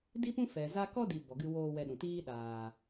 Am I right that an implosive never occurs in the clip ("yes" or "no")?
no